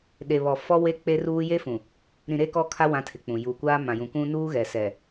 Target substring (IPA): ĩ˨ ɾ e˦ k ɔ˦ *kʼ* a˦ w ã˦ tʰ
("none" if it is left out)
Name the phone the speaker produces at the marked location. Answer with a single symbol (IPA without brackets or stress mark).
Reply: kʰ